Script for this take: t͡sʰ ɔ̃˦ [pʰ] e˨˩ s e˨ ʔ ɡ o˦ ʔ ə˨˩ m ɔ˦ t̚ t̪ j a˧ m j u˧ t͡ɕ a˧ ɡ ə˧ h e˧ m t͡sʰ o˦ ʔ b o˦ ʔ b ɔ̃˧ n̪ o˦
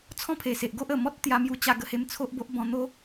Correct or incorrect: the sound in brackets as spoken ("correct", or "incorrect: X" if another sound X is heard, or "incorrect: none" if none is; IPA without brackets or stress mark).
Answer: correct